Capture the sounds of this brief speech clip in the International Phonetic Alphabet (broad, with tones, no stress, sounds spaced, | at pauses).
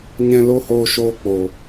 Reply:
ɲ ɛ̃˧ l o˦ h oː˧ ʃ oː˧ k͡p oː˨